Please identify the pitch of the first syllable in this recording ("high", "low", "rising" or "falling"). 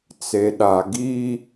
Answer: low